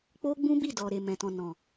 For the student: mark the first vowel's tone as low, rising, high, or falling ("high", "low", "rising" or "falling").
high